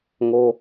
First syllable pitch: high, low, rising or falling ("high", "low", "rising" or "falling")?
high